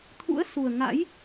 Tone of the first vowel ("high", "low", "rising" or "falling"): rising